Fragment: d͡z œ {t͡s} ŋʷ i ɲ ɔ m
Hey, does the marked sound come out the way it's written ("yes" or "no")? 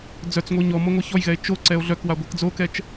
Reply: yes